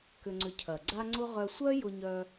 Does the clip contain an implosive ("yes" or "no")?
no